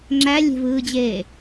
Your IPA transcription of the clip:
ŋ͡ǁælʲe̤vɯːd͡ʑeː

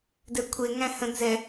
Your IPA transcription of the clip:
dɛkʷʰe ŋæ̃hə̃ nzɛ

